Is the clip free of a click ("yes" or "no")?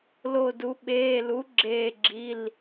no